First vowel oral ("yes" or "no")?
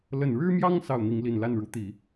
yes